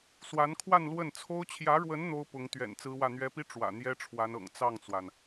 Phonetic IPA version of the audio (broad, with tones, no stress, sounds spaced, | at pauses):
s w a˧˥ n kʰ w a˥˧ n l w ə˥˩ n t͡sʰ o˥ ʊ̯ t͡ɕʰ j ä˧˥ ɻ w ə˧˥ n n̪ o˥ ʊ̯ p ʊ˧˥ ŋ t̪ ɥ ɛ̰˨˩ n t͡s ɹ̩˥ w ä˥˩ n̪ ɥ ɛ˥ p i˥ ʈ͡ʂ w ä̰˨˩ n̪ j ɛ˥ ʈ͡ʂʰ w a˧˥ n ɤ̰˨˩ ŋ t͡s ɑ˥˩ ŋ t͡s w a˩ n